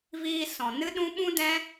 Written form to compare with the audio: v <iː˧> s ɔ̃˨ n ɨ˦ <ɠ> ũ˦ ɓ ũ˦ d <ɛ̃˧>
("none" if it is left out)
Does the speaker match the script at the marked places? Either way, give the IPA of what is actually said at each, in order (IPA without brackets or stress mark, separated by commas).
iː˧, ɗ, ɛ̃˦